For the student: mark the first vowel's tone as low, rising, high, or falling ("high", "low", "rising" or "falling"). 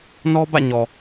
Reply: high